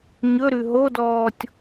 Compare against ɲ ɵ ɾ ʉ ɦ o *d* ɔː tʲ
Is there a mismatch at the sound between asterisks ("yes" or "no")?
no